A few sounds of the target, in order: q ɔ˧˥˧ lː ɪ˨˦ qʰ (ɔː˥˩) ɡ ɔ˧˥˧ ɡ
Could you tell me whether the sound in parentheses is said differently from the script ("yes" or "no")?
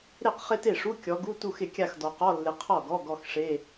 yes